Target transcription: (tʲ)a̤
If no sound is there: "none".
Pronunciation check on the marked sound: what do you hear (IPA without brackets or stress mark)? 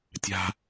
tʲ